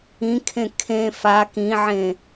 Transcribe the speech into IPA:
ĩ kʰ ẽ kʰ ẽ f a k ĩ ʕ ẽ

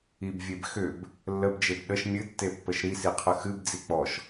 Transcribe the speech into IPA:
i b vʲ e b x ʏ b | lː ə b d͡ʒ e b ɗ ə ʃ mʲ ɨ tː e pː ə ʃ ɾ i s i qʰ ə x ɨ b d͡z i k͡p ɔ ʃ

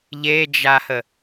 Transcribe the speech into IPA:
ʎ e d͡ʒ a h ə

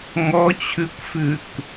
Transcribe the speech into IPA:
ŋ ɔ t͡ɕʰ ʉ kʷ f ʉ k

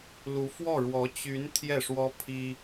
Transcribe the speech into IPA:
l u˧˥ f w ɔ˥˩ ɻ w ɔ˧˥ t͡ɕ y˧˥ n t̪ʰ j ɛ˥˩ ʂ w ɔ˥ pʰ i˥

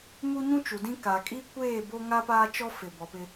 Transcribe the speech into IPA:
m u˦ ɲ ũ˦ t͡ʃ u˨ d ĩ˦ k a˨ kʼ i˦ kʷ eː˦˨ b o˦ ŋ a˦ p aː˦ t͡ʃ ɔ˦ f ɪ˨ b ɔ˨ p ɪ˦

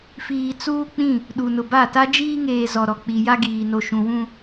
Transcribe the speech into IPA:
f iː˨ t͡s uː˦ k͡p ĩ˦˨ | ɗ u˨ n ʊ˨ b a˦˨ t a˦ d͡ʒ iː˦ ŋ eː˨ z ɔ˨ ɾ ɔ˨ k͡p i˨ j a˦ ɡ iː˨ n o˨ ʃ ũ˨ w ũ˦

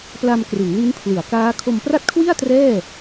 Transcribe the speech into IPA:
p l a˧ m k r ɯ˩˦ ŋ l i˦˥ n pʰ l ɯ˩˦ a̯ k aː˦˥ kʰ o˧ m p r a˥˩ t̚ kʰ w i˥˩ a̯ t r ɛː˥˩

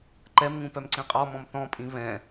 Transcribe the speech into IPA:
ǃ ɛ m ŋ ũ p œ m ǀ ĩ qʼ ɔ m ɔ̃ m θ ɔ̃ pʼ ĩ β ɛ̃

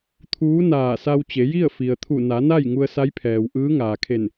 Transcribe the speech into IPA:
t̪ʰ uː˧˥ n aː˧˩ s a˧ w t͡ɕ e˩˧ j i˥˨ ə̯ f i˩ ə̯ t̪ʰ u˧˩ n a˩˧ n a˥˨ j ŋ u˧ ə̯ s a˧˥ j pʰ ɛː˩ w ʔ ɯː˧˥ ŋ aː˩ kʰ e˧˩ n

